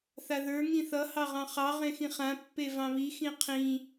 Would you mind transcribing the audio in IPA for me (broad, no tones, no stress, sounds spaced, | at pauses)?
θ a ð ə˞ ŋ ĩ θ ʌ h ɑ ʁ ɑ̃ χ ɑ ʁ ẽ x ĩ χ ã pː e v ɑ̃ β i x ĩ qʰ ĩ